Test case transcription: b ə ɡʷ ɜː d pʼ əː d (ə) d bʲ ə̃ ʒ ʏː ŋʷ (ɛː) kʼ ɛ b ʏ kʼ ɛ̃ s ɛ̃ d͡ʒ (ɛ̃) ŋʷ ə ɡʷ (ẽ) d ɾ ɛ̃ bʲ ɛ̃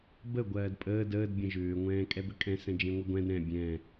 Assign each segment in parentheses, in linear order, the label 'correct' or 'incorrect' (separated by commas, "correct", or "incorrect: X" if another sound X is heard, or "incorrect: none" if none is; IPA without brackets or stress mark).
incorrect: əː, incorrect: ɛ̃ː, incorrect: ẽ, incorrect: ɛ̃